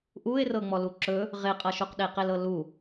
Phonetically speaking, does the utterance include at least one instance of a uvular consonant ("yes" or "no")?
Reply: yes